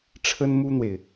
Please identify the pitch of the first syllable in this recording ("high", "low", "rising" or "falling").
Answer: high